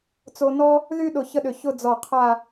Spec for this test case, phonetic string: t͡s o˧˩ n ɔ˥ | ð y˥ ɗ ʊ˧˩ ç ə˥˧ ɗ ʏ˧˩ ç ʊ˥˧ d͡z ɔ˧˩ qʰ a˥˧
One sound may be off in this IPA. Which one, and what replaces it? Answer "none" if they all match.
o˧˩ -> o˧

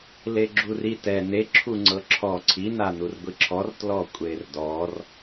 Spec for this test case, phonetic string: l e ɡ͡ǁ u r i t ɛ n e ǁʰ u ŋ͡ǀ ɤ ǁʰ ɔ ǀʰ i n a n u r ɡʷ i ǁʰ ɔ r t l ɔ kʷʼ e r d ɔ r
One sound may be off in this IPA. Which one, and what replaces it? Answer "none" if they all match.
none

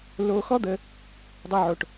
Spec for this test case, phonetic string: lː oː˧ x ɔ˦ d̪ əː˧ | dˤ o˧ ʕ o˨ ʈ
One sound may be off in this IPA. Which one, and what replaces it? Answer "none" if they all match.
none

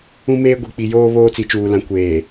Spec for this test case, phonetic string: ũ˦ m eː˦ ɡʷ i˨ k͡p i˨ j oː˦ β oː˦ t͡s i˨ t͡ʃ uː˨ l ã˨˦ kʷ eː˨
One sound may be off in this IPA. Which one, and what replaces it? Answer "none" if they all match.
none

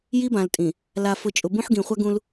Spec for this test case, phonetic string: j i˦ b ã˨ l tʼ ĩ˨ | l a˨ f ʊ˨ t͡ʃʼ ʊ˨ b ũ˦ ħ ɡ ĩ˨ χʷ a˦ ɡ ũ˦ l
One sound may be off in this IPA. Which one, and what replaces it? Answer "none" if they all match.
none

